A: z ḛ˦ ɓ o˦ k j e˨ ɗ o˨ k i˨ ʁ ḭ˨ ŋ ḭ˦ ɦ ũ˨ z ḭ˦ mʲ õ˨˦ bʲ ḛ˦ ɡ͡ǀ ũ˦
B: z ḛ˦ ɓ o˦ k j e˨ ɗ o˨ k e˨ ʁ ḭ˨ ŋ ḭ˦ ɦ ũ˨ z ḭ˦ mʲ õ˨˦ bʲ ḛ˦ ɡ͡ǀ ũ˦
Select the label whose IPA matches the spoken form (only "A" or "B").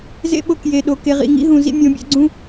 B